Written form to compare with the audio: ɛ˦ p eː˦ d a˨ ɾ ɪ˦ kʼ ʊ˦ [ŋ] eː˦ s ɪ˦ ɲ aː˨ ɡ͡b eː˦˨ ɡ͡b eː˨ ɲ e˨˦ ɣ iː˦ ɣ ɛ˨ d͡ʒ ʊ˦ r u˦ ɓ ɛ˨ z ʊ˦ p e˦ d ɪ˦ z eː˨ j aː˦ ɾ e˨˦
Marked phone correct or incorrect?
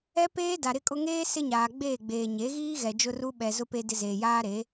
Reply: correct